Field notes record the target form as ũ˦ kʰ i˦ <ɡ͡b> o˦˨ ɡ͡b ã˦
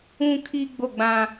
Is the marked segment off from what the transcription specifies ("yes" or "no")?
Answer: no